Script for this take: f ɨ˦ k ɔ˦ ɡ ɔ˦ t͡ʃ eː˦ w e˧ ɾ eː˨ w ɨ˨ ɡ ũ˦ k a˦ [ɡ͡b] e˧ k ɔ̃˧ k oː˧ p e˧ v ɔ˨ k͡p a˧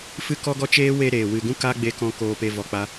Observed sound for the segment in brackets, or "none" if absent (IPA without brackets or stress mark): ɡ͡b